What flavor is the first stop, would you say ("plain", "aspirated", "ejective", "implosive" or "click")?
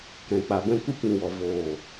plain